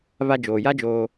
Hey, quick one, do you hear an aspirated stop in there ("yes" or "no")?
no